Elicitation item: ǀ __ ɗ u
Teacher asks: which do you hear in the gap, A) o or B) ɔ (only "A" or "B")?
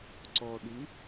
B